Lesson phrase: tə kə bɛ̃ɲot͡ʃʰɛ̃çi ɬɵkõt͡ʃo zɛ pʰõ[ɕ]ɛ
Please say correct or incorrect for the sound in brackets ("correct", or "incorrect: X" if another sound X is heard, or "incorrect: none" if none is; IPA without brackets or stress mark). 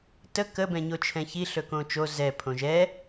incorrect: ʒ